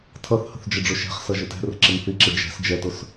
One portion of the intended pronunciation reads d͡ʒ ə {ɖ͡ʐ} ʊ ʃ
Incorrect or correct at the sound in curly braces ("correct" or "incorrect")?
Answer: correct